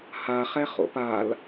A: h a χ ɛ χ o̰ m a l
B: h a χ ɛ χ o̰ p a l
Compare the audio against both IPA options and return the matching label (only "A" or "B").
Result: B